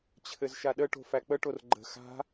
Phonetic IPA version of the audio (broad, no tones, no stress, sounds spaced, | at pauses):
t͡ɕʰ ɘ z ʃ a ɗ ə ʈ o̤ f æ k͡p ə ʈ o r ɡ͡ǃ ə̤ x a̤